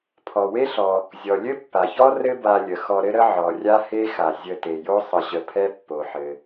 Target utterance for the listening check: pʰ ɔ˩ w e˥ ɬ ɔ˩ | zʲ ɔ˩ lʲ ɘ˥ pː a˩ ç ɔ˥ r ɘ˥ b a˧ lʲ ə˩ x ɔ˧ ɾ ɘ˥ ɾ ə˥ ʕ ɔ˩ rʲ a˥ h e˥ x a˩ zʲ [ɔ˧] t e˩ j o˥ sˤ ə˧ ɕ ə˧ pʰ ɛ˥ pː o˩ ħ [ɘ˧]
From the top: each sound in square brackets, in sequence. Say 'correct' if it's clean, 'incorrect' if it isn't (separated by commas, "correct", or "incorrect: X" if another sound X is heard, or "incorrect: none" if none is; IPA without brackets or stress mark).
incorrect: ə˧, incorrect: ɘ˩